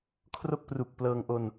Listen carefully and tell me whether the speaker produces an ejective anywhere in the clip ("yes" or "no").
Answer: no